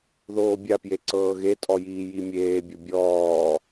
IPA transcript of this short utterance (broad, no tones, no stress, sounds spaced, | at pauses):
ð oː bʲ a p j e ǀ ɤː ɣ e tʼ ɔ j iː j i mʲ eː bʲ o bʲ ɔː